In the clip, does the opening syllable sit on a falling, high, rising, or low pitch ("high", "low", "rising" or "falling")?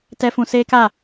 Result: high